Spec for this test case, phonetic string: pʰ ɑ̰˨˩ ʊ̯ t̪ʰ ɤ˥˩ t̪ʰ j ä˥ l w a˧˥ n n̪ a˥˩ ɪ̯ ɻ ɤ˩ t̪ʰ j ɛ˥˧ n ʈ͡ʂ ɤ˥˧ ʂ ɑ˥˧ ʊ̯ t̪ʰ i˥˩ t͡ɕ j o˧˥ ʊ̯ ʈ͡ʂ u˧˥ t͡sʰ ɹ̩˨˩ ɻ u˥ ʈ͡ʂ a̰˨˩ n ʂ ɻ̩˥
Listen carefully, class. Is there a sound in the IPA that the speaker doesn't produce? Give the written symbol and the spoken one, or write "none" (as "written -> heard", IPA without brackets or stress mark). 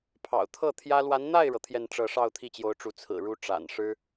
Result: none